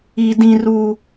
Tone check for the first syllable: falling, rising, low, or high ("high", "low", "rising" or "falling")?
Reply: high